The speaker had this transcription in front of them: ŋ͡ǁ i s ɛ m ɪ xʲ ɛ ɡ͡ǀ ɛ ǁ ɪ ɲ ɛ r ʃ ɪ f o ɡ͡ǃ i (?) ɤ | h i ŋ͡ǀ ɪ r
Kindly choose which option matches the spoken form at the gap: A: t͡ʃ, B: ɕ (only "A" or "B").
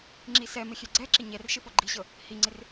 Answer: B